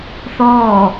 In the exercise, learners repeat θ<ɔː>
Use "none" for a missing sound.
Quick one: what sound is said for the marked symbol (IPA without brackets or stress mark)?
ɔː